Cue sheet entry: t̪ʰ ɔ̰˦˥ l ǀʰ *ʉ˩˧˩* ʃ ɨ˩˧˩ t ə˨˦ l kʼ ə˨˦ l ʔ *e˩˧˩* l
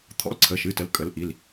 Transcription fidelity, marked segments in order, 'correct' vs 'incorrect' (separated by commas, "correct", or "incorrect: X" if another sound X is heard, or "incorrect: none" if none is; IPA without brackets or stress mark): incorrect: ə˩˧˩, incorrect: i˩˧˩